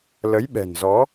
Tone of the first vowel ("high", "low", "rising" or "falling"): rising